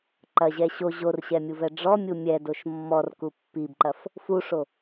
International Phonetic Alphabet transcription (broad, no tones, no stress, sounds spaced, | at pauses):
ǃ ɐ ʑ ɛ ɕ o ʑ o r ɕ ɛ mʲ u v ɛ ɖ͡ʐ ɔ mʲ u mʲ ɛ d o ʃ mː ɔ r k u pː i b ǃ ɐ f | f u ʂ o